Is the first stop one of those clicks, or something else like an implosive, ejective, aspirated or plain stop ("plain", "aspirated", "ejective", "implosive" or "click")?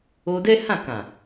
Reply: plain